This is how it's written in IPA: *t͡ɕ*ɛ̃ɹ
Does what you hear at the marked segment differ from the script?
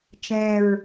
yes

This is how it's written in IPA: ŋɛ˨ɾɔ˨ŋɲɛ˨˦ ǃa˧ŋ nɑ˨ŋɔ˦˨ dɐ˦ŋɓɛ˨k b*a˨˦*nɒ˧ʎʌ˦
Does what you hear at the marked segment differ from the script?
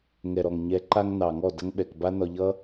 yes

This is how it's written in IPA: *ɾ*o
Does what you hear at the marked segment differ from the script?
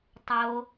yes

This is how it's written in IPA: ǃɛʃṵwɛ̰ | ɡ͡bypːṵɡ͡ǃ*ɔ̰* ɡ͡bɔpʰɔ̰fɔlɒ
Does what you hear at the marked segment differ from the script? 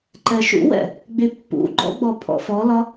no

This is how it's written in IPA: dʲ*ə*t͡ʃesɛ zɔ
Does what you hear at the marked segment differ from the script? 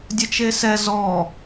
no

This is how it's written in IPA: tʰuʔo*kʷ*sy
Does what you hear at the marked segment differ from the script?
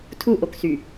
yes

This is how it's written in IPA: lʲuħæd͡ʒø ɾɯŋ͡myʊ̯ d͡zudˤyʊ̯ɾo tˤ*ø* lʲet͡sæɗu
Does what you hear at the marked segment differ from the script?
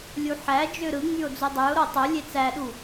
no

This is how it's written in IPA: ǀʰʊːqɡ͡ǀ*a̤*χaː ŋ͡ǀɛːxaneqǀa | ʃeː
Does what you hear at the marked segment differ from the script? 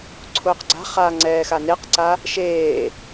no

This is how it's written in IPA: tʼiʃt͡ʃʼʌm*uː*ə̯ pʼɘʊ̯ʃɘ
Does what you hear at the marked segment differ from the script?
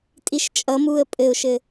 no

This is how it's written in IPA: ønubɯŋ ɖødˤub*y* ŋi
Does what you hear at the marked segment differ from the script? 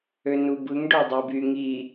no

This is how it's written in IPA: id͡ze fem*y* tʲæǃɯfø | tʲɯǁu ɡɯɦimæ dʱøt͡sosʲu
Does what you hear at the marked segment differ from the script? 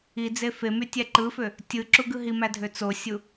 no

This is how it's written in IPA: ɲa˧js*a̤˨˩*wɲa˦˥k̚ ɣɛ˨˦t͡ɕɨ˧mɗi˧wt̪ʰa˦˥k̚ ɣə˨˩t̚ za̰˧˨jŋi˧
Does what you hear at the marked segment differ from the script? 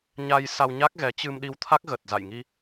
yes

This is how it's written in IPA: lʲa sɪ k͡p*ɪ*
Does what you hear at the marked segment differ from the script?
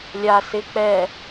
yes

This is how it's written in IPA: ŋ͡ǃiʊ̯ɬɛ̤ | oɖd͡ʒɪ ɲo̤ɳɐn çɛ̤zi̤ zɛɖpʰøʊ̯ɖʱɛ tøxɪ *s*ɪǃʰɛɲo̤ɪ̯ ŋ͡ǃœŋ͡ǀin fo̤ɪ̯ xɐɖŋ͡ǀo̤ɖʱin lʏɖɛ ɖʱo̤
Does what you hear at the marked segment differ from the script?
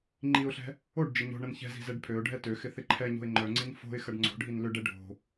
yes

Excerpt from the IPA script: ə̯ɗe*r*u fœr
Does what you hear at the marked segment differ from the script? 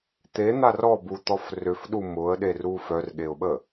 no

